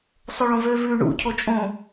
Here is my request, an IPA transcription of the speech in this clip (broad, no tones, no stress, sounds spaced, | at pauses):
sˤ o ɭ õ v ø v ʉ ɳ ṵ cʰ o t͡ʃʼ õ